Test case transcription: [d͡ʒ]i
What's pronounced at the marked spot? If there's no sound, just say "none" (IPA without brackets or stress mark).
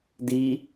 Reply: d